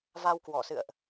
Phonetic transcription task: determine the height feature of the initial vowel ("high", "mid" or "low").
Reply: low